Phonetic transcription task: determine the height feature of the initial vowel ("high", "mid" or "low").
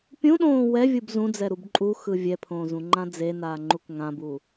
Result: high